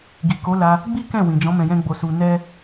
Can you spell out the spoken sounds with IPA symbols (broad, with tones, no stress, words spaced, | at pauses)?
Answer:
ɡi˨ko˨˦la˧ | ɡ͡bi˦ kɛ̃˦˨wĩ˨d͡ʒɔ̃˨˦ mɛ̃˧jɛ̃˦ɡ͡bo˧su˧ nɛ˦